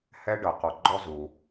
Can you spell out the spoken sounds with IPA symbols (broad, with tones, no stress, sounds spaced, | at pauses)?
h ɛ˥ ɖ ɤ˨ q ɔ˨ ɡ͡ǃ ɔ˦ z u˩